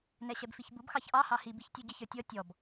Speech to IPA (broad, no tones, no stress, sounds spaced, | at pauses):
n ɛ ɕ ɛ b f i ç b u b x ɑ ç ʔ ɑ h ɑ h i b i ç tʲ u ɟ ɪ ç ə˞ tʲ ɔ tʲ ɔ b